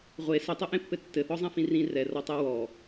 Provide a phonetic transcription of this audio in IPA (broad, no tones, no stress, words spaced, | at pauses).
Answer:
ʁʷe sɘtˤɛʔẽpːɘ tːɘθɔzˤẽfĩ rĩ rɛrɔtˤɛ wɔ